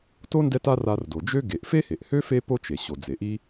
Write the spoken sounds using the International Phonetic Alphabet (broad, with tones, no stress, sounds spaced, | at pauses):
t o˥ n d ɛ˦ t a˦ r a˨ r d o˩ d͡ʒ ø˦ ɡ e˩ ʔ f e˥ h e˩ ʔ h ø˥ f e˦ p o˥ t͡ʃ e˩ ɕ o˩ d͡z e˩ ʔ i˦